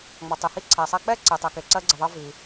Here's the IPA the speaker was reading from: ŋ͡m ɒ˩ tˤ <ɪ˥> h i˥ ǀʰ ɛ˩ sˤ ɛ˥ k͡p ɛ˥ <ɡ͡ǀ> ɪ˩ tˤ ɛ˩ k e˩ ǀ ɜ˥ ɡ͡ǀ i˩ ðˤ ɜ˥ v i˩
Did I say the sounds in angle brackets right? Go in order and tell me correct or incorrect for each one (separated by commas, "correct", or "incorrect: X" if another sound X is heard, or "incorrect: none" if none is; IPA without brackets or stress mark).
incorrect: ɪ˩, incorrect: ǀ